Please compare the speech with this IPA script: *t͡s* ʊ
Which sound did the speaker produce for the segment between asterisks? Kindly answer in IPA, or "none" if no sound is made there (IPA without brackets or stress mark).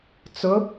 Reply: t͡s